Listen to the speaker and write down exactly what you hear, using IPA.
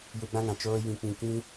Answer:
j u˧ ɡ͡b ã˦ ŋ ã˨ t͡ʃ oː˦ j ĩ˧ k͡p ĩ˧ k ĩ˦

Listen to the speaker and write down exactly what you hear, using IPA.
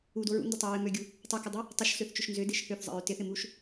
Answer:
u d o ɹ ṵ n d ə tˤ o ɹ ɪ m ø ɡʲ u | tˤ u k ɪ dˤ ʏ | tˤ ə ʃ s ø θ t͡ʃ ʏ ʃ n z ʏ d ɪ ʃ h ø θ zˤ ə̰ ɹ ʏ t ɪ θ ɪ m u ʃ

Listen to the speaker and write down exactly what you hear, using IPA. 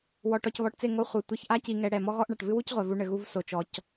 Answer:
w ɔ˨ ʈ ɔ˨ c β ɔ˨ ʈ t͡s e˦˨ ŋ o˦ χʷ ɨ˨ tʷ ɛ˦ ç ʔ a˦ c i˨ ŋ ɛ˨ ɽ ɛ˨ m ɔ˦ ɣ ɔ˦ ʔ ɳ a˨ ʈ v ɨ˦ w u˦ c ʁʷ ɛ˨ v u˦ ɳ ɘ˨ ɣ u˦ v s o˨ t͡ʃ ɔ˨ c

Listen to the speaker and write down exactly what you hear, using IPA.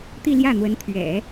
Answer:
t̪ i˥˧ l j ä˥˩ n̪ w ə˧˥ n t̪ʰ ɥ ɛ̰˨˩˦

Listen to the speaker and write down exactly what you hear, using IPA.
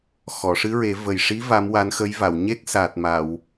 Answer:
x ɔ˨˩˨ ʂ ɨ˧˥ ɹ e˨˩˦ v ə˨˩ j ʂ i˧˥ v a˧˥ m w a˧˥ n x ə˧˥ j v a˨˩˨ w ɲ e˦˥ k̚ s a˨˩ t̚ m a˨˩˨ w

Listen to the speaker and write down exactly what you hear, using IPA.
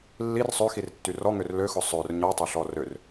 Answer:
lː i r sˤ ø x i r tː y r ɔ ŋ ø r l ø x ʊ sˤ ø r ɲ ɔ tˤ o ɬ ɔ r ø r

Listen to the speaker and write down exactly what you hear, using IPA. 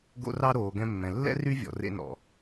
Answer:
ɡ o̰˧ r ɑ˧ ɾ oː˨ ɡ ɛ̃˧ mː ɛ̃˨ lː ɛ̰˦ r y˦ vʲ ɔ̰˨ r ḛ˧ n ɔ̰˨

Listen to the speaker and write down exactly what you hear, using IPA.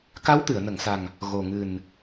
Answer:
k a˧˥ w t̪ ɨ˨˩˨ ə̯ n ə˨˩˨ ŋ s a˨˩ ŋ | ɣ o˨˩ ŋ ɨ˨˩ n

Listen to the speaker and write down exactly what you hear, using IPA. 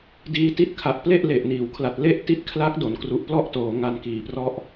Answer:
d iː˧ t i˦˥ t̚ kʰ a˨˩ ʔ p l e˥˩ ʔ l e˨˩ ʔ n iː˩˦ w kʰ l a˨˩ t̚ l e˥˩ ʔ t i˦˥ t̚ kʰ l a˦˥ k̚ d o˨˩ n k r u˦˥ ʔ p l ɔ˥˩ ʔ t oː˩˦ ŋ a˧ n k iː˨˩ p r ɔ˥˩ ʔ

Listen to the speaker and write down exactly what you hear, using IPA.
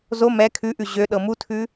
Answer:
z o m ɛ kʰ ʉ ʔ ʉ ʑ ø ɗ ɤ m u tʰ ʉ

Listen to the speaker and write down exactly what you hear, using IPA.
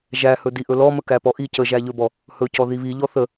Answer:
ʒ æ h ɵ d i ʔ ɵ l ɔ m ə k æ p ɔ ʔ i c ə ʒ æ ʎ ɵ b ɔ | h ɵ c ɔ ð i β i ʎ ɔ θ ə

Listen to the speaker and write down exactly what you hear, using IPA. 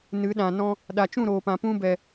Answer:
n ɨ˨˦ ɗ ã˨ n ɔ̃˧ | ɗ a˨ t͡ʃ ũ˦˨ ɾ oː˨ p ã˨ p ũ˧ b ɛ˨

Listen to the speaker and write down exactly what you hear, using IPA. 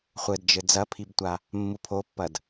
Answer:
χʷ ɘ d d͡ʒ ɘ d͡z ɐ pʰ i b tʷ a | mː u pʰ o pː ɐ d

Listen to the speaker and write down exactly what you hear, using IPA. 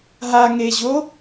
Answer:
ɦ a ŋ e ʑ o

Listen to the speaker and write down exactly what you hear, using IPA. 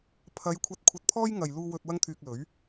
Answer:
pʰ ɐ˨˧ j kʷʰ ɐ˧ t̚ kʷʰ ɐ˧ t̚ pʰ ɔː˥ j ŋ ɐ˨ j l uː˧ w ɵ˧ t̚ w ɐ˥ ŋ t̪ʰ yː˧ k̚ l ɵ˨˥ ɥ

